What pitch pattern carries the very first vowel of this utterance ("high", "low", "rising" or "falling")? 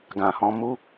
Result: low